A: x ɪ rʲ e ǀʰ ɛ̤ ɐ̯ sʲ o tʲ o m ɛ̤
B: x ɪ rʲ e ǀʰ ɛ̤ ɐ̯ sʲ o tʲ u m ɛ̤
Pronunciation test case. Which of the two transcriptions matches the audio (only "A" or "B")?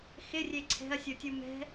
B